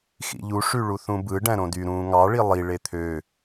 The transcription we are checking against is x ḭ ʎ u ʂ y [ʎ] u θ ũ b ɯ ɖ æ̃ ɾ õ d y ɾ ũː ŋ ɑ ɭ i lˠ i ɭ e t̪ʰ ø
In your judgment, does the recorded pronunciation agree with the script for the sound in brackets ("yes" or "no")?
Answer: no